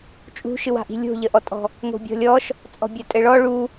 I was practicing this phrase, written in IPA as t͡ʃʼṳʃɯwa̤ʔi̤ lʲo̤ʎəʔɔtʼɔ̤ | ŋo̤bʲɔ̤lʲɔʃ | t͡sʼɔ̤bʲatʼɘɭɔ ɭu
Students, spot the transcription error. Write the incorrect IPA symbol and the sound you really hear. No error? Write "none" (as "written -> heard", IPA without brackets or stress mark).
none